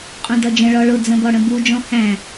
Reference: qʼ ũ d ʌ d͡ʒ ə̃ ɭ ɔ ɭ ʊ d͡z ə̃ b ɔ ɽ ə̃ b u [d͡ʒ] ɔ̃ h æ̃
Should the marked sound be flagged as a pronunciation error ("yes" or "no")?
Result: no